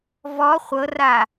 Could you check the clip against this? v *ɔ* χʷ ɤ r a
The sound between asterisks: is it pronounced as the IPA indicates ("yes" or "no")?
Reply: yes